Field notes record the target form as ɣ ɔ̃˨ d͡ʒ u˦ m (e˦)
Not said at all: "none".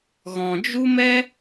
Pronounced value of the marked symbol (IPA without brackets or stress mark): ɛ˦